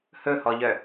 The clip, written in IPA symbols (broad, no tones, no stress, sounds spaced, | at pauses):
h ɵ h ɔ ʎ œ